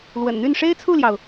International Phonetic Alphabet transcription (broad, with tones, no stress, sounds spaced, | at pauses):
l w ə̰˨˩ n n̪ y˥˩ n ʂ e˥ ɪ̯ t͡sʰ u˥˩ l j ɑ˩ ʊ̯